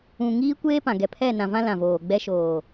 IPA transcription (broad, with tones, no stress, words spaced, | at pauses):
ũ˨ŋiː˦ kʷeː˦pã˨ ɡɛ˨pʰɛ˦˨nã˨vã˦ lã˨voː˨ɡ͡bɛ˦ ʃoː˨